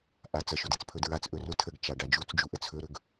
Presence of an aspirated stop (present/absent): present